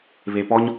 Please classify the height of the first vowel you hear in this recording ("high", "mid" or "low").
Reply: mid